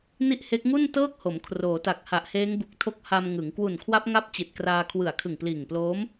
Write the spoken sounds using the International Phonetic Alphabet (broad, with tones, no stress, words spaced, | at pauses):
ni˥˩ʔhe˦˥k̚ ŋu˥˩ntɤː˥˩k̚ho˩˦m kʰroː˩˦ta˨˩k̚ ha˨˩ʔheː˦˥ŋbu˨˩k̚ tʰo˦˥k̚ha˧mŋɯ˩˦ŋ kwu˨˩nkʰwa˦˥p̚ŋa˦˥p̚ t͡ɕi˨˩t̚kraː˧kʰwɯ˨˩a̯ kʰɯ˨˩ŋpliː˨˩ŋploː˦˥m